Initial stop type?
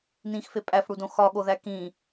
ejective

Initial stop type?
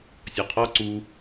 aspirated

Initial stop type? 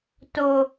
plain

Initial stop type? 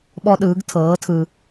implosive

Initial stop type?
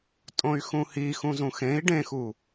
ejective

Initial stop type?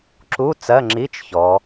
click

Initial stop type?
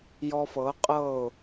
ejective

